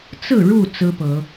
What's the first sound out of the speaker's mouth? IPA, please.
t͡s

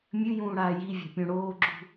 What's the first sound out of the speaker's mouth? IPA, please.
mʲ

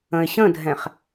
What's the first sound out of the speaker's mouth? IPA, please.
ə̃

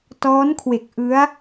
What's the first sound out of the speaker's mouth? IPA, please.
t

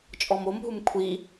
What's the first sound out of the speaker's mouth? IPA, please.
t͡ʃʼ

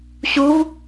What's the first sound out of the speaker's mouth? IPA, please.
ɕ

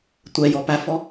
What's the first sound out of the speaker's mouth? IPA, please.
tʷ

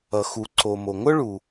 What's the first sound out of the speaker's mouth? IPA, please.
ʌ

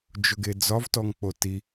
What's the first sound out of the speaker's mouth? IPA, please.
d͡ʒ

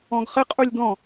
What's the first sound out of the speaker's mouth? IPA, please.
ɔ̃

